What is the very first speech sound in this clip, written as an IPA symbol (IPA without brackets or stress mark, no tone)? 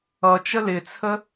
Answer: ʌ